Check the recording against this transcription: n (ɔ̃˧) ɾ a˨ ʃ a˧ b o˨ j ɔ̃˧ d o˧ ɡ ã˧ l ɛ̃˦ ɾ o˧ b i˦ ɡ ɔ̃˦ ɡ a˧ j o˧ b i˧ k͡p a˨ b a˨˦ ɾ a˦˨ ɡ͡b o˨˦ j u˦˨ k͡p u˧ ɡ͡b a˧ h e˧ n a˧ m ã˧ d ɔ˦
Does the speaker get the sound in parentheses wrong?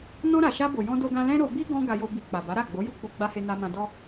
no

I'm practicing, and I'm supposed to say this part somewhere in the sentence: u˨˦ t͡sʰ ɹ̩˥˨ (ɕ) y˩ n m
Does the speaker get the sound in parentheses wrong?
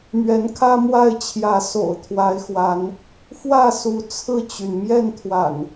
yes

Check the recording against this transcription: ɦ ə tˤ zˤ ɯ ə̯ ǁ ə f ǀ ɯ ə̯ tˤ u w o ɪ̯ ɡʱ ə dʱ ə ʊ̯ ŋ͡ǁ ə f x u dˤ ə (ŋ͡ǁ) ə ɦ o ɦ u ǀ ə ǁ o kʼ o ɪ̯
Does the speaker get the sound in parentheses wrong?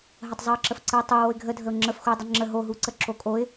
no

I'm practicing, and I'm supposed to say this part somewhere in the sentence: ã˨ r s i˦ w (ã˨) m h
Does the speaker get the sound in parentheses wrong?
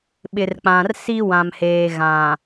no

